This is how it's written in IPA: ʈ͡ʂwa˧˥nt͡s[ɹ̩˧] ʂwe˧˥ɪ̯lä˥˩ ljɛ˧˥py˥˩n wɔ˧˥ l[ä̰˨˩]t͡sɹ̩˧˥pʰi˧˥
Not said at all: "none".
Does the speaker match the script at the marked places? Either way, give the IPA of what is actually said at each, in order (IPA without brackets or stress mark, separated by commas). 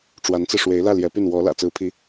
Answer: ɹ̩˧, ä̰˨˩